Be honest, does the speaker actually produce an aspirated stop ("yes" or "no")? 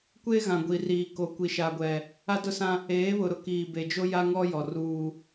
no